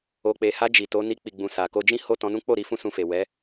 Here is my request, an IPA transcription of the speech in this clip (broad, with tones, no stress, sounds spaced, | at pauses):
o˨ k͡p e˨ h a˧ d͡ʒ i˨ t o˨˦ n i˧ k͡p i˨ ɡ͡b ũ˨ s a˨ k o˧ d͡ʒ ĩ˦ h o˦˨ t ɔ̃˧ n ũ˦ k͡p o˦˨ ɾ i˧ f ũ˦ s ũ˧ f e˨ w ɛ˨˦